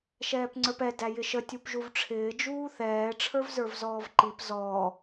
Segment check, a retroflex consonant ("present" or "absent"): present